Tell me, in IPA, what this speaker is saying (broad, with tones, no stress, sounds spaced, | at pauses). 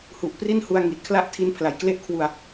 h u˨˩ ʔ p r i˥˩ n h u˧ a̯ ŋ i˨˩ t̚ kʰ l a˥˩ ʔ tʰ i˦˥ n pʰ l a˨˩ j k l e˥˩ ʔ kʰ w u˧ a̯